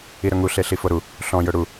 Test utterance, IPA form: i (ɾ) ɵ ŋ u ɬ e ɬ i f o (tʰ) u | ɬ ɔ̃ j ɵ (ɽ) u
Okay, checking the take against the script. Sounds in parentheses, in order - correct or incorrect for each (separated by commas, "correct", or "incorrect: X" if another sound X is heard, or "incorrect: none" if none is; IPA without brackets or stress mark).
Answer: correct, incorrect: ɾ, correct